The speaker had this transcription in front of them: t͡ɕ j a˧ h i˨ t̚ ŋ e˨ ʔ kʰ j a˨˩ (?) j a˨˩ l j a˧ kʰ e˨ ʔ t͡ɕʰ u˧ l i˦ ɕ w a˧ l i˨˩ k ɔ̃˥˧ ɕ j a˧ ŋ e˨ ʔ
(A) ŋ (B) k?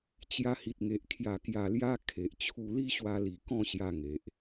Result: B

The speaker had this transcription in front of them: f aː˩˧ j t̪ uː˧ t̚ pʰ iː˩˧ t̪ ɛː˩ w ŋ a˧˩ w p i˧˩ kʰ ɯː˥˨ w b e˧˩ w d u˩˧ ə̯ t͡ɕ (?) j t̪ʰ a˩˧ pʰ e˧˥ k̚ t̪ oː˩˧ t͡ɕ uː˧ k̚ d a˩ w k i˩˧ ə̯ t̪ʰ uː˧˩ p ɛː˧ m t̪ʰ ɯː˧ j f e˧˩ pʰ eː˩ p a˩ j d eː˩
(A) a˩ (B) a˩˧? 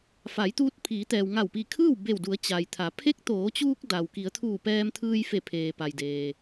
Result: A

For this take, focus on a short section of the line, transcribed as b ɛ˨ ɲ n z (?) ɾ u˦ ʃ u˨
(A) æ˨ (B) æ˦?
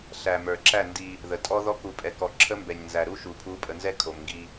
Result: A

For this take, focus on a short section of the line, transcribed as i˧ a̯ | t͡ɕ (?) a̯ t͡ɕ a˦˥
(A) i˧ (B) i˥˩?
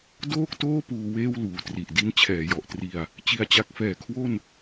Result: A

